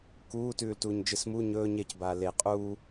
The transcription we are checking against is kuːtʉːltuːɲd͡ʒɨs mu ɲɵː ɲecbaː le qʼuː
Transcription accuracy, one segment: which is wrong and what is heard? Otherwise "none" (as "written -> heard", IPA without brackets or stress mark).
none